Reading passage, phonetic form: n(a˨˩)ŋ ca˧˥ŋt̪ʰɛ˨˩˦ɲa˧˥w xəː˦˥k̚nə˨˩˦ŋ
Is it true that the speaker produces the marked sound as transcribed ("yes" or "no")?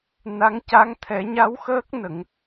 no